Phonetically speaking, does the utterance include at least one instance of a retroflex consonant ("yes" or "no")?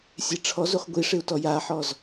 yes